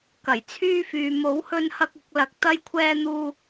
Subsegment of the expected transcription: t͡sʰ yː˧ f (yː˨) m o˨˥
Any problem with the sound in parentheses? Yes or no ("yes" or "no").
no